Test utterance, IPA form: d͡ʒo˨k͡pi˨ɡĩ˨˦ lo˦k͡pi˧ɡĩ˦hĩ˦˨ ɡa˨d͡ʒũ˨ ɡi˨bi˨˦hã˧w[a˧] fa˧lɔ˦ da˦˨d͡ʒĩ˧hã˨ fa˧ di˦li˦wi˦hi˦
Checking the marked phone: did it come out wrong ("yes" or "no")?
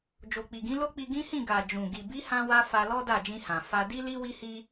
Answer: no